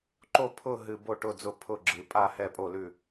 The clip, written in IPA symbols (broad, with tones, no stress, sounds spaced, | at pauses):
ǃ o˦˨ pʰ ʊ˦˨ ɦ ɨ˨ b o˦˨ ʈ ʊ˦˨ d͡z ʊ˦˨ pʰ ʊ˦˨ ɡ͡ǁ ɨ˨ pʼ a˦˨ h ɛ˦˨ pʼ o˦˨ l ʉ˦˨